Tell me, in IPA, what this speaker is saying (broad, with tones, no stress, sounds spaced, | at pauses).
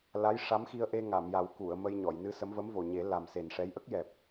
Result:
l a˧˥ j ʂ a˧˥ m x i˧ ə̯ ʔ e˧ ŋ a˨˩˨ m j a˨˩˦ w k u˨˩˨ ə̯ m ə˧ j ɲ ɔ˨˩˨ j n ɨ˧ s ə˧˥ m v ə˧˥ m v o˨˩ ɲ e˨˩˦ l a˨˩ m s e˨˩ n ʂ ɛ˧˥ j ʔ ə˦˥ k̚ j ɛ˨˩ p̚